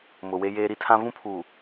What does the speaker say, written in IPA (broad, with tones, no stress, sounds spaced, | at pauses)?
m ʊ˨ w e˦ j eː˦ ɾ i˦ tʰ ã˦ v ũ˦ pʰ uː˨